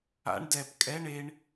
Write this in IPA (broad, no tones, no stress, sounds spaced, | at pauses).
a̰ ɳ d ɛ p kʼ ɛ ɳ e ɳ